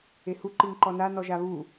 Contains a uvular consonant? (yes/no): no